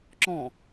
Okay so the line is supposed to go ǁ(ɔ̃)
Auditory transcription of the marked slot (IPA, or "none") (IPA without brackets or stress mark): ɔ̃